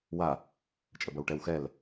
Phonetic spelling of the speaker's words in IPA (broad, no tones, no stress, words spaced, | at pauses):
wa | t͡ʃʼəbɐwʈɛwxɛl